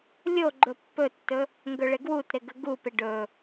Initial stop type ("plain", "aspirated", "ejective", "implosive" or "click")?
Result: click